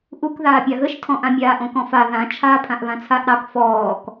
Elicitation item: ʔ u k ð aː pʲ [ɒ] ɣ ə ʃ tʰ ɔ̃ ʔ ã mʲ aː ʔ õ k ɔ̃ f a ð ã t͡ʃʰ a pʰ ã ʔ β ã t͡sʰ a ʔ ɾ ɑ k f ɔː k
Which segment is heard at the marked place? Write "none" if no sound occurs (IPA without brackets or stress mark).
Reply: ɑ